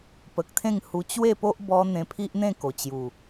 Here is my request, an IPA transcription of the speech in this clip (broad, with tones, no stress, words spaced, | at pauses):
pə˨k̚t̪ʰẽ˥˧ŋ hu˧t͡ɕwe˥˧po˦ʔ bɔ˧ n̪ẽ˧pʰi˦ʔn̪ẽ˥˧ ko˨˩t͡ɕju˨˩